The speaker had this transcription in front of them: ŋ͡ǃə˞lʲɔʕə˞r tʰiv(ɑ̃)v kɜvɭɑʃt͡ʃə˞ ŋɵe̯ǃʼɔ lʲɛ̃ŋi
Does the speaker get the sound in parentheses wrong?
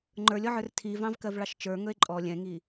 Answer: no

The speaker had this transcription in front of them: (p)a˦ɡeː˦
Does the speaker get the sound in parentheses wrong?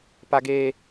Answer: no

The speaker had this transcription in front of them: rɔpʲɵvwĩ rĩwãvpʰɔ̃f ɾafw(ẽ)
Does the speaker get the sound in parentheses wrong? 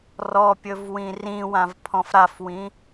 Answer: yes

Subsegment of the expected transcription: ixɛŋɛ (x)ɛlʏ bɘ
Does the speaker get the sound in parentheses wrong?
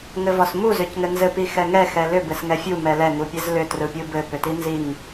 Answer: no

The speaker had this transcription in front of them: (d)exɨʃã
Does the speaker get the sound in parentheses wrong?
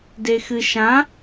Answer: no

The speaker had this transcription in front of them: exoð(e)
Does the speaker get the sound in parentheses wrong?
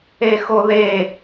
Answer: no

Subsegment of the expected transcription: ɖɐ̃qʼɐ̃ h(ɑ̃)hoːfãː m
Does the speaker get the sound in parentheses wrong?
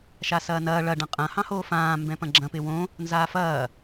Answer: no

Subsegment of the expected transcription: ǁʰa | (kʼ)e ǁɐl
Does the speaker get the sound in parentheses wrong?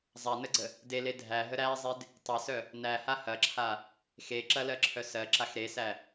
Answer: yes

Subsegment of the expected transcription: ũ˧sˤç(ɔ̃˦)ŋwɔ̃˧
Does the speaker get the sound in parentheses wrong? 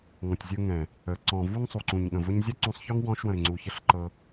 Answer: yes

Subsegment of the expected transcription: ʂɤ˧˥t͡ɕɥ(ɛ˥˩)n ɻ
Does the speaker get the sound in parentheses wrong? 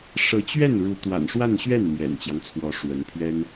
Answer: no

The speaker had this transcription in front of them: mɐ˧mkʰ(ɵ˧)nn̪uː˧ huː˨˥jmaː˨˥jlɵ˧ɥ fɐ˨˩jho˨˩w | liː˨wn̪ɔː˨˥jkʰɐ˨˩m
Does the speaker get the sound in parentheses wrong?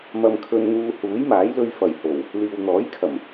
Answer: no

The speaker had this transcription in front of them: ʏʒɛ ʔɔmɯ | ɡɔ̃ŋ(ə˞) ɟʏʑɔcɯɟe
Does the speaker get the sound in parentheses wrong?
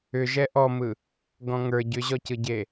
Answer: no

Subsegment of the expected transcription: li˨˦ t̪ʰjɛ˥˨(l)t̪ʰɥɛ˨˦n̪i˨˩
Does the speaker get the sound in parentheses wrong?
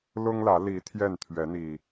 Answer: yes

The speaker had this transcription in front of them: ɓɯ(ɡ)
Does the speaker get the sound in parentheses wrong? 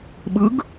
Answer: no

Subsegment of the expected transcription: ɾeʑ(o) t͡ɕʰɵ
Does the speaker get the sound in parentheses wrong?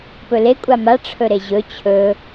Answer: yes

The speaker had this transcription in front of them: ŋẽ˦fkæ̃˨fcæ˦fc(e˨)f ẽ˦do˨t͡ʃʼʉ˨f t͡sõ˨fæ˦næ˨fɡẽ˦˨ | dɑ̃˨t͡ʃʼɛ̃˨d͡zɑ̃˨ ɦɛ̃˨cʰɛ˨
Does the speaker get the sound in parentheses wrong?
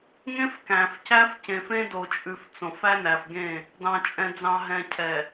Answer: yes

